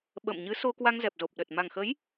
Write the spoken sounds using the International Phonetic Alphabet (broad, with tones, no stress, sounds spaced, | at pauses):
ɓ ə̰ː˧˨ m ɲ ɨ˨˦ s o˧ k w a˧ ŋ z ɛ˨˩ p̚ z o˨˩ p̚ ɗ ə˨˩ t̚ m a˨˩ ŋ x ə˨˦ j